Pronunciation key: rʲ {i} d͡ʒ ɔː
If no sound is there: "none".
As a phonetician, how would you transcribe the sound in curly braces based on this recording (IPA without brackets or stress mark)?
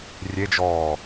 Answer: e